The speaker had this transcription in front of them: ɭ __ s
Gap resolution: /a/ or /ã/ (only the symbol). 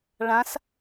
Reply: ã